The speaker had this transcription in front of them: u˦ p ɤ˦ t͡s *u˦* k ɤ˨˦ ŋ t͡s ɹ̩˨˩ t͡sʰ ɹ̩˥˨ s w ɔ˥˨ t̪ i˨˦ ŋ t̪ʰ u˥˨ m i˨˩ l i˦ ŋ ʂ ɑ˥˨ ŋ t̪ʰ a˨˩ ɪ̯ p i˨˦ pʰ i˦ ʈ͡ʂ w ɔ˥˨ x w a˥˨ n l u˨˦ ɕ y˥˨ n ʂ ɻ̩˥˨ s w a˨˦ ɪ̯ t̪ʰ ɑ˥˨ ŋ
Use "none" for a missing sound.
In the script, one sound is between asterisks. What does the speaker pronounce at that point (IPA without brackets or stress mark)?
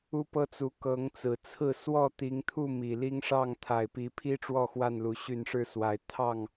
u˨˦